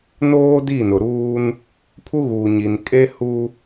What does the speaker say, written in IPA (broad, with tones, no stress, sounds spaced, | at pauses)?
n oː˦ d i˦˨ n ʊ˨ ɾ uː˦ n | pʰ u˦ ɣ uː˨ ɲ i˨ n kʼ e˦ h u˦